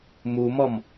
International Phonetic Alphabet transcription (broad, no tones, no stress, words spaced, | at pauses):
mumɔm